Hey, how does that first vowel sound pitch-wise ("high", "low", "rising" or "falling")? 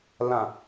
low